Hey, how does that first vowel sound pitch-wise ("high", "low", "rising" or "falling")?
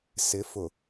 rising